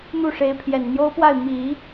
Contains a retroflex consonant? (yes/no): yes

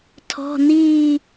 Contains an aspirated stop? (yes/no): yes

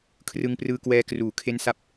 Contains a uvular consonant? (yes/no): no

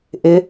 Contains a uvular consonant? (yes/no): no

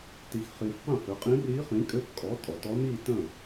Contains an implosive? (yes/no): no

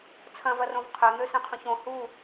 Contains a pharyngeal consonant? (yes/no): no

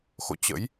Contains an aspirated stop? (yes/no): no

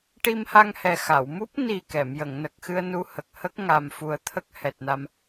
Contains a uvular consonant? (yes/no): no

